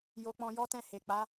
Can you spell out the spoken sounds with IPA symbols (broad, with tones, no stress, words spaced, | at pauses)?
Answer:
jo˧k͡pɔ̃˧ jɔ˦tɛ̃˦˨ he˨k͡pa˨˦